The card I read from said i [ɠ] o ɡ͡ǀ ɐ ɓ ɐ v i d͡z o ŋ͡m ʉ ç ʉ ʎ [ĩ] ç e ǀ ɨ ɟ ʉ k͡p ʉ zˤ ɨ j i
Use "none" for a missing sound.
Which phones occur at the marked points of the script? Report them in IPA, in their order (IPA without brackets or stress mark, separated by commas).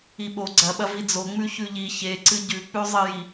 ɓ, i